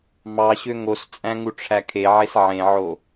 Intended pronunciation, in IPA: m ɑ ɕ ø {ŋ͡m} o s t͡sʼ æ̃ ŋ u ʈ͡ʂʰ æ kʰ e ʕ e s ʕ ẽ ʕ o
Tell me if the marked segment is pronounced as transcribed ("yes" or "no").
no